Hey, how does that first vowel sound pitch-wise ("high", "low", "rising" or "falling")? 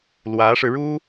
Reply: rising